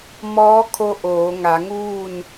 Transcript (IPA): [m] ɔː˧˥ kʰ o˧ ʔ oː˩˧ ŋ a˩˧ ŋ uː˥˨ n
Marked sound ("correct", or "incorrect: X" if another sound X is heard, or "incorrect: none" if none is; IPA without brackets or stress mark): correct